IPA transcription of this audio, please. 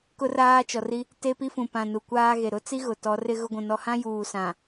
k ʊ˦ r aː˦ t͡ʃ ɔ˨ r i˦ | t e˦ p i˦ f ũ˨ p ã˨ n u˨ kʷ aː˦ ɣ e˨ ɾ ʊ˦ t͡s i˦ ɣ ʊ˨ t ɔ˨˦ r ɪ˦ ɣ ʊ˦ ɡʷ ũ˨ n ɔ˦ h ã˦ j uː˨ s ã˨

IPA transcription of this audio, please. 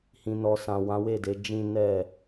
h ĩ˨ n ɔ˨ s ã˨ w ã˨˦ w e˦˨ d e˨˦ d͡ʒ ĩ˦ n ɛ˦˨

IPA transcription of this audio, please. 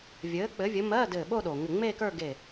vʲ ɘː˨˥ k͡p ɘ˨˥ vʲ ɘ˨˥ m ɜ˧˥˧ d ɘː˧˩ ɓ o˥˧ ɗ o˩ ŋ ɘ˧˩ ŋ͡m eː˥˧ k ə˞˥˧ ɡ e˧˩

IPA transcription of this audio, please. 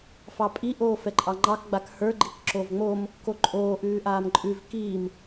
f ɑ pʼ i ʔ oː f ɛ ǃʼ ɑ ŋ͡ǃ ɑ k ɡ͡b a k h ə˞ ɡ͡ǃ i k ǁ o v ŋ͡m o m | k o ǃʼ oː ʔ ʉː ʔ aː m ǃʼ ʉ v k iː m

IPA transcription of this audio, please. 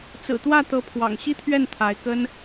t͡s ɹ̩˨˩ t̪ w ä˥˩ t̪ ɤ˧˥ pʰ w ɑ̰˨˩ ŋ ɕ i˥ t̪ʰ ɥ ɛ˥˩ n t̪ʰ a˧˥ ɪ̯ k ə˥ n

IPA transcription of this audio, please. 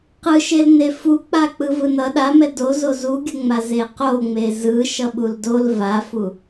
q ɯ ʃ e l n e f u k͡p a k͡p ɯ v ɯ n ʌ ɗ a m ɛ d o z o z u ɡʲ u ŋ͡m a z e q o ŋ͡m e z ɯ ʃ ʌ ɓ u l d o l v a f u

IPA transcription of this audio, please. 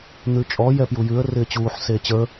n̪ ʉ t͡ʃʼ ɔ j ɛ p j u j ʉ ə̯ r ɪː t͡ɕ uː ħ s eː t͡ɕ ə˞

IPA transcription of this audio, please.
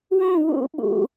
w ũ˥˧ w ṵ˥ ɓ ṵ˧

